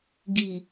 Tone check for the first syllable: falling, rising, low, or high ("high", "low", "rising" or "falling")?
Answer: low